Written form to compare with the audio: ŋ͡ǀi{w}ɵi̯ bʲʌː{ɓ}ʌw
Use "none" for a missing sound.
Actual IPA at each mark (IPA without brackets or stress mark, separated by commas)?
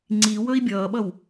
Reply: w, ɓ